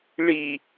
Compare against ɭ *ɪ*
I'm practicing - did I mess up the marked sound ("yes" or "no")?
yes